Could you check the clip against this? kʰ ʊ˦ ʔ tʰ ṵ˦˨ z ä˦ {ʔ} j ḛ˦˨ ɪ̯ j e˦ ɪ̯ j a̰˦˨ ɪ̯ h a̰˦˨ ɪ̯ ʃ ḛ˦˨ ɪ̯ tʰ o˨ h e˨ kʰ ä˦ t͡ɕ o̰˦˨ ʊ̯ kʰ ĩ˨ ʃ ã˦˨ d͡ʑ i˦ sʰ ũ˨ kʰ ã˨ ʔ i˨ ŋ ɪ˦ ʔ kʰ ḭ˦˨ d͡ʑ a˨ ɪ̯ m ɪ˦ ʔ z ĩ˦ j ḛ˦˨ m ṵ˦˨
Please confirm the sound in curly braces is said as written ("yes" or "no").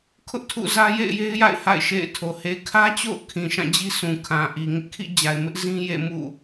no